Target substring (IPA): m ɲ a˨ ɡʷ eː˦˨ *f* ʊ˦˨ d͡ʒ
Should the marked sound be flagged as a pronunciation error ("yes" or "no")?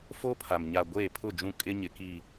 yes